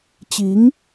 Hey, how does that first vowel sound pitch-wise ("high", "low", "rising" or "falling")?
rising